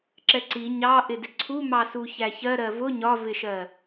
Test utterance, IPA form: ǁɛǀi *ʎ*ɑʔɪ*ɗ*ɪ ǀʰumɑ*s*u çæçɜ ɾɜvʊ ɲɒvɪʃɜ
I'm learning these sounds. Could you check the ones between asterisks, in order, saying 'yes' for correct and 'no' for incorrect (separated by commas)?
no, no, yes